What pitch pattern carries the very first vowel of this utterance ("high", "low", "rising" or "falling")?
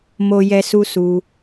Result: high